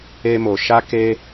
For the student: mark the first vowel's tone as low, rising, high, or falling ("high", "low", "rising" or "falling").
high